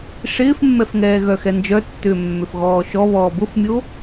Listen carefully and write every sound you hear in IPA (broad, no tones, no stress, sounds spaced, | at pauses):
ʂ ɪː f mː ɛ f ŋ ɛː ɣ œ x ɛ n d͡ʒ œ tː ʏː mː ʏ f ɣ ɔː ʃ ɔ β ɔː b ʊ f mʲ o